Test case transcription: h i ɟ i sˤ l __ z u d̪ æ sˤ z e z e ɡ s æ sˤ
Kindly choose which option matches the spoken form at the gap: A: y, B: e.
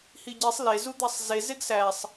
B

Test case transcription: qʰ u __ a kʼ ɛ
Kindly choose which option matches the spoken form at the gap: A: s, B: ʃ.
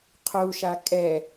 B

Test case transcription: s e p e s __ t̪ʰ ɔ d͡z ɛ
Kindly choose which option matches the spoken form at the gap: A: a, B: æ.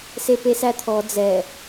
B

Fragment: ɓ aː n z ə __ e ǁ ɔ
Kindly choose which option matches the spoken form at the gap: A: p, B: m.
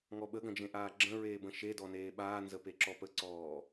A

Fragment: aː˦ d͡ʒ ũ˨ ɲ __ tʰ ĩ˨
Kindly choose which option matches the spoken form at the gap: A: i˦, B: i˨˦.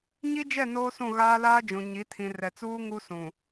B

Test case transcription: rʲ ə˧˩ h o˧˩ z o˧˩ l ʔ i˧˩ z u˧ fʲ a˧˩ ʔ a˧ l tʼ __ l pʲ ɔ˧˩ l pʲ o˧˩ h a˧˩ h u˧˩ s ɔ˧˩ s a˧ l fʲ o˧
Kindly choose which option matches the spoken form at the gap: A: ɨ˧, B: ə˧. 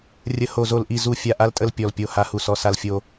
B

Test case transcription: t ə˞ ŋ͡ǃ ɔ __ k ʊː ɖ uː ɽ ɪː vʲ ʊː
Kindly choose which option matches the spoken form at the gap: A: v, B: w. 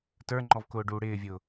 A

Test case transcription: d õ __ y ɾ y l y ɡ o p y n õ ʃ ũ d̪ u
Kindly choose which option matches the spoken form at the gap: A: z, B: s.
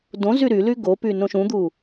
A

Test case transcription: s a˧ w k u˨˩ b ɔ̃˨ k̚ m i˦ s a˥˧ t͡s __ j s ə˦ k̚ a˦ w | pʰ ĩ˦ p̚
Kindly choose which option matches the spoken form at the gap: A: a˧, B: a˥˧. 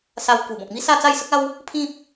B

